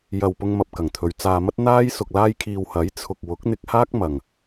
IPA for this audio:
j ɐ˨ w p ʊ˧ ŋ m ɐ˨ p̚ k ɐ˨˩ ŋ t̪ʰ ɵ˨˧ ɥ t͡s aː˧ m ɐ˥ t̚ n̪ aː˥ j s ʊ˨ k̚ l aː˧ j kʰ iː˨ w h ɐ˨˥ j t͡sʰ ʊ˨ k̚ w ʊ˨˥ k̚ n̪ ɪ˧ k̚ h aː˥ k̚ m ɐ˨ ŋ

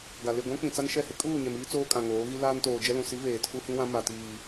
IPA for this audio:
ɡ a˨ l ɪ˦˨ ɡʷ ã˦ k͡p ĩ˨ t͡s a˦ n ʃ ɛ˦˨ h ɪ˦ kʼ uː˦˨ ɲ ɛ˨ m iː˦ t͡s oː˦ kʼ ã˨ ŋ oː˨˦ ɣ i˦ l aː˦ n t oː˨ d͡ʒ ɛ˦ l ũ˨ s i˨˦ v eː˨ tʰ u˦ h ĩ˦ w ã˦ m a˨ t iː˨

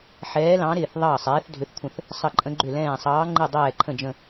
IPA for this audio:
ħ ɛː˨˦ l ɑ̃˨˦ ɾ ɪː˧˩ θ ðˤ ɑː˧˩ sˤ ɛː˨˦ θ dʱ ʏ˨˦ θ kʷʰ ə̃˧˩ θ | sˤ ə˧˩ ǃʼ ə̃˨˦ ɡ͡ǃ ʏ˧˩ l ɛ̃ː˧˩ sˤ ɑː˨˦ ŋ͡ǃ ɨ˧˩ dˤ ɛː˧˩ ǃʰ ə̃˧˩ d͡ʒ ə̃˧˩

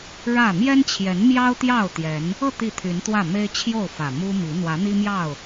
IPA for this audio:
ɻ ä˥˨ m j ɛ˦ n t͡ɕʰ j ɛ˨˦ n m j ɑ˦ ʊ̯ t̪ j ɑ˥˨ ʊ̯ t̪ j ɛ˨˦ n | ɤ˥˨ t̪ i˥˨ t̪ʰ y˨˦ n t̪ w ä˥˨ m e˦ ɪ̯ t͡ɕʰ j o˥˨ ʊ̯ f ä˨˩ m u˦ m i˨˦ n̪ w ä˨˦ n̪ i˦ m j ɑ˥˨ ʊ̯

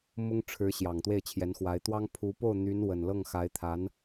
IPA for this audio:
m ʊ˥ ŋ ʈ͡ʂʰ ɻ̩˧˥ ɕ j ɑ˨˩ ŋ t̪ w e˥˩ ɪ̯ t͡ɕʰ j ɛ˧˥ n x w a˧˥ ɪ̯ t̪ w ɑ˥ ŋ pʰ u˧˥ p o˥˩ ʊ̯ n̪ y˧˥ n w ə˨˩ n l ɤ˥˩ ŋ x a˧˥ ɪ̯ t̪ʰ a˧˥ n

